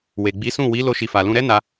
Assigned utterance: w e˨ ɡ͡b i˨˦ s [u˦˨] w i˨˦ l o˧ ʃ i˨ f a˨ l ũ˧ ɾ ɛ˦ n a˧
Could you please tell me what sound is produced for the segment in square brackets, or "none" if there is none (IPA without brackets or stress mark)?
ũ˦˨